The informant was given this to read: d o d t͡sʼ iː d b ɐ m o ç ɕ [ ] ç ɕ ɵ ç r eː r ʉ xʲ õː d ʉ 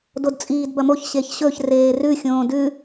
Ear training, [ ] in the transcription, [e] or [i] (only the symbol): e